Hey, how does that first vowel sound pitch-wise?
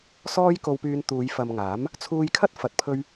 high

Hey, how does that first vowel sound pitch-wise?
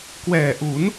low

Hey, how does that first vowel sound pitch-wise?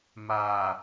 low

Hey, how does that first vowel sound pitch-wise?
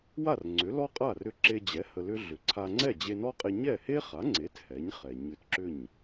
falling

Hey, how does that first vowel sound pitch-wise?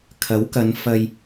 rising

